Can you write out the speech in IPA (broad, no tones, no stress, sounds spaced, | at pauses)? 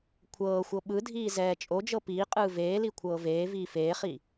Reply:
kʷʰ ɤː xʷ ɤ ɓ ɯ dʱ iː z ɛː t͡ʃʼ o d͡ʒ ɤ p iː qʼ ɯː v eː l i kʷʰ ɤː v eː v iː f eː χ i